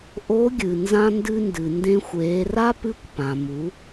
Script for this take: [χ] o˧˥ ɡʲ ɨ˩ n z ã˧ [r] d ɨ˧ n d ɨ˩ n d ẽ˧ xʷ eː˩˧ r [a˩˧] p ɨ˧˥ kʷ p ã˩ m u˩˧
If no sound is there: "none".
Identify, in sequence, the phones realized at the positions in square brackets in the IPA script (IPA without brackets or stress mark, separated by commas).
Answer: ʔ, n, a˥